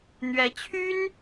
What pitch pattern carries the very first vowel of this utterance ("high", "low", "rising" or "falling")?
rising